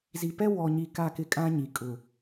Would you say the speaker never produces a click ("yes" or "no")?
yes